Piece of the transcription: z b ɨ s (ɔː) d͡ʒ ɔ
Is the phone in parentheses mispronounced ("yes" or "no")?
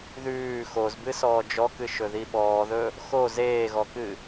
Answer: no